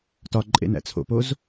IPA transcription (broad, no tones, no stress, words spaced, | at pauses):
tɒǃʼḛn æ̰t͡sʰo̰poz